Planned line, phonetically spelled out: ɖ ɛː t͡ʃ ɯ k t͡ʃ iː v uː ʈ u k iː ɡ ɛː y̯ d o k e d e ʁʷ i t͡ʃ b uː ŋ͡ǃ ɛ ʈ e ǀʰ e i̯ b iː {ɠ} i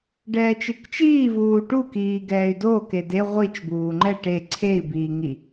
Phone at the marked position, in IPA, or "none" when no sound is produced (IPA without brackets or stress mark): ŋ